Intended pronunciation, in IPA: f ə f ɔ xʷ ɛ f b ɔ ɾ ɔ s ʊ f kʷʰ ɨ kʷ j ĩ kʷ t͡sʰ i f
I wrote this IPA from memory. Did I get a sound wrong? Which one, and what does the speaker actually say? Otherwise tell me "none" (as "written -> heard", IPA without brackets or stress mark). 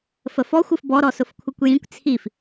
ɛ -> ɨ